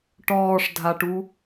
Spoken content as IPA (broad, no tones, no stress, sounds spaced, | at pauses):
ʈ ɔː ʂ dʱ a ʈ u